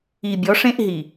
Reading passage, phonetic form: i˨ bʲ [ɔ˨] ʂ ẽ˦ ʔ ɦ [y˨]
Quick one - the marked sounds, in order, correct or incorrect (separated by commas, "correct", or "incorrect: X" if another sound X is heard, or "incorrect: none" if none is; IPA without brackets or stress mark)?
incorrect: ɔ˨˦, incorrect: i˨